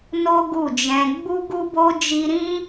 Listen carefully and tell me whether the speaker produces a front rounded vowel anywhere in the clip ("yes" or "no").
no